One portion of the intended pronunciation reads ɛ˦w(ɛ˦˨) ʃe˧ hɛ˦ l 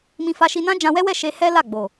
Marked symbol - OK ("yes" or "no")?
yes